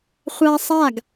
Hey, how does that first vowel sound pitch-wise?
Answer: high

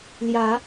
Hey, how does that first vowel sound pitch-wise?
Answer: rising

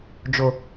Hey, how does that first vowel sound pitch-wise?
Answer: low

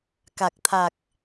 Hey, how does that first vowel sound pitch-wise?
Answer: low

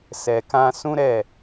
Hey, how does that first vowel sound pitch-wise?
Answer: low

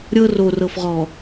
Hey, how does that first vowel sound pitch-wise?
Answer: high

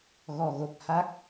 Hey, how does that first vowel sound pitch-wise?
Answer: low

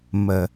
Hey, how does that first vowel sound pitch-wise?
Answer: low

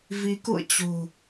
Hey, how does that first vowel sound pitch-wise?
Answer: rising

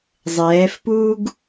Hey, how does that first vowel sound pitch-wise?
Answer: rising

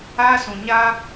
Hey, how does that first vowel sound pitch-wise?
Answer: high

